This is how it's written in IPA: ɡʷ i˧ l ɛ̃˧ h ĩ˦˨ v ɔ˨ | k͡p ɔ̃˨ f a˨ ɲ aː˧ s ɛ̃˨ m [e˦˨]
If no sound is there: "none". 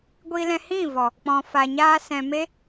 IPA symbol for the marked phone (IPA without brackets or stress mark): e˦